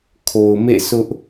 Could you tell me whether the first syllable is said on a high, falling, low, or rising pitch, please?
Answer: low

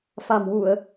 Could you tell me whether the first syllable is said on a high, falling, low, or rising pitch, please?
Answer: low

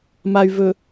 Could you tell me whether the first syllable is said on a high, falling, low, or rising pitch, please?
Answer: low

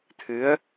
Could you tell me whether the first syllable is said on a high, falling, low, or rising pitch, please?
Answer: rising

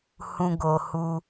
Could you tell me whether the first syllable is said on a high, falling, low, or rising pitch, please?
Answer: high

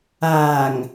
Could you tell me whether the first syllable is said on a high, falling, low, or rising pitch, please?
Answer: low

